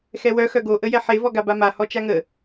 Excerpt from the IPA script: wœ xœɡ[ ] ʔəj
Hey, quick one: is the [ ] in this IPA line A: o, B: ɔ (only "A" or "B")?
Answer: A